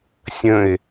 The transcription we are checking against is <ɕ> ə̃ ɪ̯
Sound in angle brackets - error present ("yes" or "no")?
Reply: yes